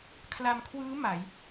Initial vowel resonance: oral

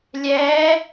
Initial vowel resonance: oral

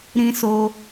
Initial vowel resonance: nasal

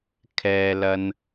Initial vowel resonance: oral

